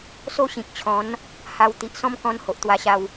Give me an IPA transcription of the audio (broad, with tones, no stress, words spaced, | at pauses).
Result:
so˥˧ɕĩ˨k̚t͡ɕʰɔ̃˨˦n | ha˧w t̪i˨ʔsɔ̃˦mkɔ̃˧n ho˨ʔt̪wa˧ɕa˧w